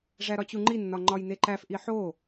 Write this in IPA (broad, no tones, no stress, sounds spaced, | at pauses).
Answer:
ʐ æ ɾ ɒ t͡ɕ u ŋ͡ǃ i nː ɒ ŋ͡ǃ ɒ j n e ǃ æ f ʔ i ħ o